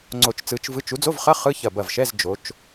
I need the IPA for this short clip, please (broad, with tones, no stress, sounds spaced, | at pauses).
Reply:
ŋ͡ǀ o˧˩ t͡ʃ t͡s ɯ˨˦ t͡ʃ v ɯ˧˥˧ t͡ʃ u˨˦ d͡z o˧˥˧ v χ ɐ˧˥˧ χ ɯ˧˥˧ ç ɐ˧˩ b ɐ˧˩ v ʃ ɛ˧˥˧ z d͡ʒ o˨˦ t͡ʃ